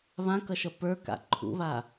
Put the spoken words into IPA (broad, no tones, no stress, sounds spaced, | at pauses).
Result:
β ã k ʌ ʃ ʌ p ə˞ k a̰ ǃʰ ṵ β a